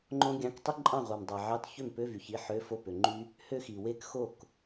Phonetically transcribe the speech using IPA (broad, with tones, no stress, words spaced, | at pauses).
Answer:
ŋ͡ǃõ˦˥ɡʲɑ̃˧˥˧k tˤy˦˥ ǃʼɑ̃˥˩ʁʷɑ˨mdˤɑ˨ʕɑ˧˥˧t çø˥˩mpø˧˥˧ vy˨çi˥˩ ħø˧˥˧ fo˥˩pø˨ŋ͡ǃy˦˥ | hø˦˥xi˨ we˦˥kxo˥˩k